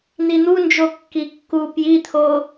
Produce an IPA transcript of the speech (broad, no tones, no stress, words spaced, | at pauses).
n̪in̪und͡ʒo kːikːu pjit̪ʰo